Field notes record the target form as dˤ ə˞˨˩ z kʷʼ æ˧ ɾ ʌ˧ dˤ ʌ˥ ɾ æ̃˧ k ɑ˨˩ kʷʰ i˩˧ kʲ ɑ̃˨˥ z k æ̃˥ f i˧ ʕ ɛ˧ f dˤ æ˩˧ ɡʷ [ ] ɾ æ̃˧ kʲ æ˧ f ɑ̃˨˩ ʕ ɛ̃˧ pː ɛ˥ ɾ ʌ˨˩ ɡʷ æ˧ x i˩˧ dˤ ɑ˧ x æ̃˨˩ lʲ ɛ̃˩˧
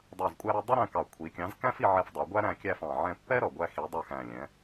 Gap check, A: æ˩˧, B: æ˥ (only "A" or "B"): B